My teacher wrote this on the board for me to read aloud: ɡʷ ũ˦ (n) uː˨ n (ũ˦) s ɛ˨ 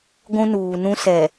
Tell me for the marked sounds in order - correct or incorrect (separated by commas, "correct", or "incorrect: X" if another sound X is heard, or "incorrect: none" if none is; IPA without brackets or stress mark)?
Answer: correct, correct